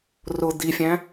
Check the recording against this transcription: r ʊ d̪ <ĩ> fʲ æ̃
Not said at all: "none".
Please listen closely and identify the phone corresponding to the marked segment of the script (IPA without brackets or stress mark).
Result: i